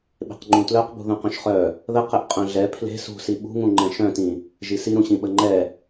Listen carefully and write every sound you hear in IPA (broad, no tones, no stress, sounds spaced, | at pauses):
ɓ e̤ q ŋ͡ǃ ũ t l œ q b ṳ ð ũ q œ̃ ʃ χ œ | ð ə q ɛ ʔ qʼ œ̃ ɮ ɛ pʰ l e̤ s ṳ s i ɓ ṳ ŋ ũ ŋ͡ǃ ɛ̃ ʃ œ̃ t ĩ | ʒ i s i ɾ ũ ɕ ĩ ɓ ə ŋ͡ǃ ɛ